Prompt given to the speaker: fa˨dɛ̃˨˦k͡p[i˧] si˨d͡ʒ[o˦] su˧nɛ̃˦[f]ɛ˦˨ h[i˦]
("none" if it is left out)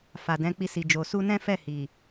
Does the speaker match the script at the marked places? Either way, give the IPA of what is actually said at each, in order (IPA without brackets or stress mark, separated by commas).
i˧, o˨, f, i˨